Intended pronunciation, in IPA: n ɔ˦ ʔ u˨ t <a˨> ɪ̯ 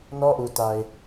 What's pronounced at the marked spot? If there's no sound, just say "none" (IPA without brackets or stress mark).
a˨